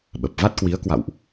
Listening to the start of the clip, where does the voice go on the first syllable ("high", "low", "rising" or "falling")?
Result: low